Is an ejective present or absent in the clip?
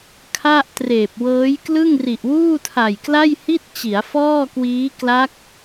absent